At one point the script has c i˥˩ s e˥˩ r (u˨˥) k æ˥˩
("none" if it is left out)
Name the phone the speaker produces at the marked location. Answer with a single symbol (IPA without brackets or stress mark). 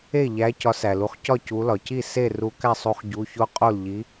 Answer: u˨˥